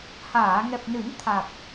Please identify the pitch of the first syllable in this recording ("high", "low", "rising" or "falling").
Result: low